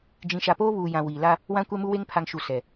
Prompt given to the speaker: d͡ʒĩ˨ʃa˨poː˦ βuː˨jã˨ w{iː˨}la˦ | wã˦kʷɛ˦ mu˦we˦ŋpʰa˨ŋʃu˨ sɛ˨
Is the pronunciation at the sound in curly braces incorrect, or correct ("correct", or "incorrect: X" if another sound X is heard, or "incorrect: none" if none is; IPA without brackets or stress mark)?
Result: correct